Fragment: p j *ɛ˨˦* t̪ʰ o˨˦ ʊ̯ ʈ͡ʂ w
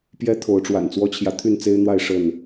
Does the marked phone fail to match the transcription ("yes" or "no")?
yes